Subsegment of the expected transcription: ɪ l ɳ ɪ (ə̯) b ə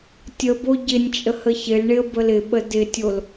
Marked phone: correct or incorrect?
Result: correct